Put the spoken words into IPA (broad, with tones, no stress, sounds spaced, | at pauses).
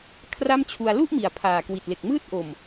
kʰ r a˥˩ m t͡ɕʰ u˧ a̯ l u˥˩ ʔ m i˨˩ a̯ pʰ aː˨˩ k w i˨˩ t̚ l e˨˩ k̚ m ɯː˥˩ t̚ ʔ o˨˩ m